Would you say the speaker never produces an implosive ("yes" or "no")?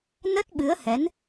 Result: no